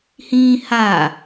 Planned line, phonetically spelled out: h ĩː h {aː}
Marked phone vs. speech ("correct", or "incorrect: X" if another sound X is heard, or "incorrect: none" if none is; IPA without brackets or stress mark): correct